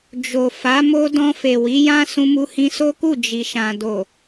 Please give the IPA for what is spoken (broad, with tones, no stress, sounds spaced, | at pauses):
d͡ʒ o˨ f a˨˦ m o˧ d ɔ̃˧ f e˨ w i˨˦ j ã˦ s ũ˧ m u˧ h ĩ˧ s o˦ k u˦˨ d͡ʒ i˨ ʃ ã˨ d o˨